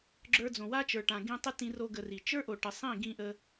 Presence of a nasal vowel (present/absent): present